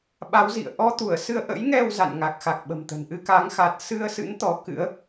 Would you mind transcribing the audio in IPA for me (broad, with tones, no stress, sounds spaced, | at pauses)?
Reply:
ɓ a˨˦ w z ḭ˧˨ ə̯ ʔ ɔ˧ t̪ u˧˩ ə̯ s ɨ˧ ə̯ ʔ ə̰˧˥ j ŋ ɛ˧ w z a̰˧˨ n ŋ a˨˩ k̚ x a˨˩ k̚ ɓ ə̤˨˩ m t̪ ə̤˨˩ n ʔ ɨ˧ k a˨˦ ŋ x a˨˩ t̚ s ɨ˧ ə̯ s ɨ̰˧˥ n t̪ ɔ˨˦ k ɨ̰˧˥ ə̯